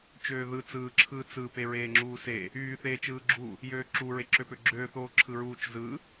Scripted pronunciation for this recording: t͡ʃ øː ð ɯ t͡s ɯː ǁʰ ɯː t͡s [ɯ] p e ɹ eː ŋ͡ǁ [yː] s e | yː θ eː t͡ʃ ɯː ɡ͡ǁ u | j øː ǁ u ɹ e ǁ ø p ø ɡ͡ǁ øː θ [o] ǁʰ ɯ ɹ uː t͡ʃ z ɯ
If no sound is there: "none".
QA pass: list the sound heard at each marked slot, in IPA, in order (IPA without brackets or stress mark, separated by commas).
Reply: ɯ, uː, oː